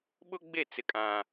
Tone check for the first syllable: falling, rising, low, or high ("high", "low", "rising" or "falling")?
high